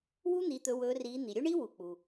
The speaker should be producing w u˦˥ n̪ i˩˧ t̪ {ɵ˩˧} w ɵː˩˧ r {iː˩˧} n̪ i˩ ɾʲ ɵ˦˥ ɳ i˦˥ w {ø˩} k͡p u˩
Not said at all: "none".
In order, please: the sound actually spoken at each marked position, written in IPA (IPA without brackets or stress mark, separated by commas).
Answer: ɵ˩˧, iː˩˧, u˩